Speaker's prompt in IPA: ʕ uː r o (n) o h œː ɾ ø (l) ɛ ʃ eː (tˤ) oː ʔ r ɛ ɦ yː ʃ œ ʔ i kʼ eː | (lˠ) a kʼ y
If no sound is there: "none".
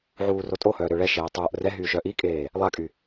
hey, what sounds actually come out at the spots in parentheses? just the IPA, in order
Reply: tʼ, ɭ, tˤ, lˠ

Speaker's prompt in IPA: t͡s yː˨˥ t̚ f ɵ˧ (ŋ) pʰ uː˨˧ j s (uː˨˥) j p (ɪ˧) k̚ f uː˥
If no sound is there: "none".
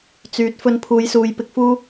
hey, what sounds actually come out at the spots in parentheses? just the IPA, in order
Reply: n, uː˨, ɪ˧

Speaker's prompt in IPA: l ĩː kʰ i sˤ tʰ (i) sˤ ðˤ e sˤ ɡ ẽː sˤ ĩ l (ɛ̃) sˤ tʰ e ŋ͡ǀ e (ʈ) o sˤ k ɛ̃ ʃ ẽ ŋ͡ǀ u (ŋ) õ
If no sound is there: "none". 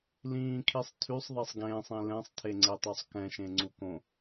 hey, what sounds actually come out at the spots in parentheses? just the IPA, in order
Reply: y, ɛ̃, tˤ, k

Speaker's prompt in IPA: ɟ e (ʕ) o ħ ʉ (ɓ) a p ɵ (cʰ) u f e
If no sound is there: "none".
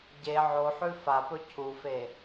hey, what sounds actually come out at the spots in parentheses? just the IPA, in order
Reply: ʕ, f, cʰ

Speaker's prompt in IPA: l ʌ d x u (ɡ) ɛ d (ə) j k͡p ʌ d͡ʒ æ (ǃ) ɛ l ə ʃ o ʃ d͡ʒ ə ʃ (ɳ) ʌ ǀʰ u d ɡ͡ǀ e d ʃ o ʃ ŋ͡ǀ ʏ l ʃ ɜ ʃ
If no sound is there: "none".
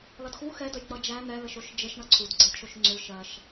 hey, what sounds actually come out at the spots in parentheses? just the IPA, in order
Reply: x, ə, n̪, ɳ

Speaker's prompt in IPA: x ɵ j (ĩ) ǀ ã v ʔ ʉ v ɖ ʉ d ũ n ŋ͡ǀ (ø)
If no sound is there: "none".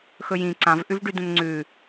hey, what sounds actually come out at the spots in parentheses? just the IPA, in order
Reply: ĩ, ʉ

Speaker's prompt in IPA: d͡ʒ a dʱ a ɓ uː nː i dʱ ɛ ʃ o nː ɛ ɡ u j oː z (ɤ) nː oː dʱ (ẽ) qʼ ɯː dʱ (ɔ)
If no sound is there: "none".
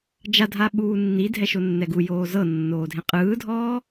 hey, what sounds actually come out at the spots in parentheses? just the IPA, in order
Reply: ɤ, ẽ, ɔː

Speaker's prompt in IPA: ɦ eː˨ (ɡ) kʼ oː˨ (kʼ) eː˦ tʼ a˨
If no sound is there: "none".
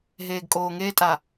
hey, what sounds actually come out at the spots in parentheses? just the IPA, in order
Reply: ɡ, ŋ

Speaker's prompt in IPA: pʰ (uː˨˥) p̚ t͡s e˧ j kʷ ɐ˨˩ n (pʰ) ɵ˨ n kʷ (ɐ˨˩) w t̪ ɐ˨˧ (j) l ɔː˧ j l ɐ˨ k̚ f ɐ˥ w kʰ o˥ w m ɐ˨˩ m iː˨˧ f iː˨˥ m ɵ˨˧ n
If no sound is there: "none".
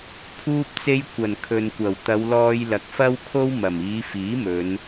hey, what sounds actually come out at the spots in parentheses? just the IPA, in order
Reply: uː˧, kʰ, ɐ˨˩, w

